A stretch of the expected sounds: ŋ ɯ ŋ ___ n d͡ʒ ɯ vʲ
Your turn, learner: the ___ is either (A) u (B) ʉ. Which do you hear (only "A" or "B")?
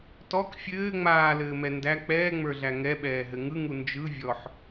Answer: A